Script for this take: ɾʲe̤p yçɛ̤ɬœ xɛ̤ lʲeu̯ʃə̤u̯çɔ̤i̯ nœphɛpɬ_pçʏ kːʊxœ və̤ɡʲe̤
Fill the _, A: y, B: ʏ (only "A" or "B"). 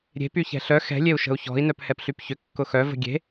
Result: A